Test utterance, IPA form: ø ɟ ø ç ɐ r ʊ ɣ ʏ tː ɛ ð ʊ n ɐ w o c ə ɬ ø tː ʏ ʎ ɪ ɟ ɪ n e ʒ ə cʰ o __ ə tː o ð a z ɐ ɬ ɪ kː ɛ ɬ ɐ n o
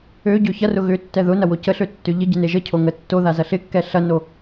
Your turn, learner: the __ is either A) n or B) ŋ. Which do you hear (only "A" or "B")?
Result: B